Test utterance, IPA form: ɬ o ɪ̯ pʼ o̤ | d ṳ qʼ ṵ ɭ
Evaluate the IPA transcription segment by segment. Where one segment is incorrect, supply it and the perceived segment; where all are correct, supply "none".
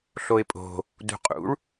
none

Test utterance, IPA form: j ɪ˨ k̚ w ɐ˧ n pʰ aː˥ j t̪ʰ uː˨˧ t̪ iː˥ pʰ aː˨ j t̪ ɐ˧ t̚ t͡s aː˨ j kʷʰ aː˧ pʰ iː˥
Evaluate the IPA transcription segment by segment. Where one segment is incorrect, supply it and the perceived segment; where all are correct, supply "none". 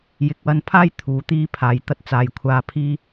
none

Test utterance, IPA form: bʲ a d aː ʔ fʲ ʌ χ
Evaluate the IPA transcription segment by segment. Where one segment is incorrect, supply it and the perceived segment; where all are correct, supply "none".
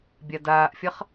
none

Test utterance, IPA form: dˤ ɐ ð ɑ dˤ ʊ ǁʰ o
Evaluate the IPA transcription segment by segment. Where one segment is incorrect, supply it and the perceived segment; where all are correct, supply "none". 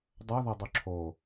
ɑ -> ɐ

